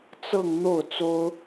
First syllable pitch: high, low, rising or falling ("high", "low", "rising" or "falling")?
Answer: falling